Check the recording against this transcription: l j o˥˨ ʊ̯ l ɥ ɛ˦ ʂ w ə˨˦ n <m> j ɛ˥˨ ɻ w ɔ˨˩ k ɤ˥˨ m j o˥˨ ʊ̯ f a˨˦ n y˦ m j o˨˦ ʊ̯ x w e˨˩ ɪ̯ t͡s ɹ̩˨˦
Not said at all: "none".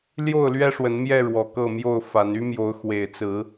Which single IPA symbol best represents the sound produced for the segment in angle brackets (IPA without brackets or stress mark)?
m